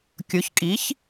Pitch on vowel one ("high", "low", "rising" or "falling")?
rising